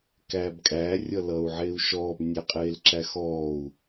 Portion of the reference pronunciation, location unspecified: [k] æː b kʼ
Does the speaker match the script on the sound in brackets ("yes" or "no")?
yes